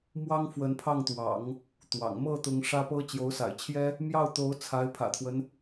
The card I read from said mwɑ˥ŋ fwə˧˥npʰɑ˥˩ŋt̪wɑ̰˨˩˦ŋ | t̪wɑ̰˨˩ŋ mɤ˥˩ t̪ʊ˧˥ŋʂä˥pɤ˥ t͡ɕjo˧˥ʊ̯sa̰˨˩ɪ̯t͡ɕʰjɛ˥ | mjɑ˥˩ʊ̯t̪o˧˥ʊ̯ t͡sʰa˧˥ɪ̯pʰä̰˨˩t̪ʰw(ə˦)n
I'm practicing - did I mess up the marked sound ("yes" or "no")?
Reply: no